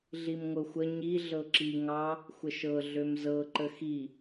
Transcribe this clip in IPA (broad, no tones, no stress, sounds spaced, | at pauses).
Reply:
ɮ i m ŋʷ ɤ xʷ ə ɲ i ɮ ɤ ǁ i ŋ ɑ | xʷ ə ʃ ɤ ɮ ø m z ɤ ǃ ə x i